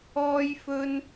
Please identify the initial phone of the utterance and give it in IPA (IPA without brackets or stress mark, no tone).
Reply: ɔː